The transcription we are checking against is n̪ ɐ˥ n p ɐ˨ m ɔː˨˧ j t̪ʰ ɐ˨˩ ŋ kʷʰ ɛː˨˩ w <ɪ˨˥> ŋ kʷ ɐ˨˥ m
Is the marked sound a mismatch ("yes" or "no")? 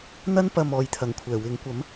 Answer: no